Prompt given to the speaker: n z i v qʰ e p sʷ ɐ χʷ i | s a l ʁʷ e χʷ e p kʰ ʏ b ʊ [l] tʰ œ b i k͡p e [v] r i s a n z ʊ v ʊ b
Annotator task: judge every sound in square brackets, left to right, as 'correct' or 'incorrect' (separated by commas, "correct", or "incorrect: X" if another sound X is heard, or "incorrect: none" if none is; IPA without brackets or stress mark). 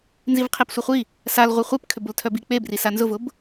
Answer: correct, incorrect: b